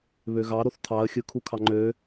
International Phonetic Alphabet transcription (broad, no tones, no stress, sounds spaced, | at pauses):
β ø ɣ ɑ ɾ o θ tʰ ɑ ə̯ xʲ ɯ kʰ u kʰ ɑ ŋ͡ǃ ø